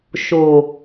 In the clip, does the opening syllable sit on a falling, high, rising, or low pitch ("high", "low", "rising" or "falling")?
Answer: low